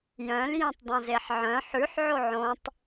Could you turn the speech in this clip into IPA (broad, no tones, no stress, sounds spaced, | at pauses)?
j œ̃ l j ẽ tˤ dˤ õ z e ħ ʕ œ̃ ħ ʉ ħ ʕ o ʕ õ tˤ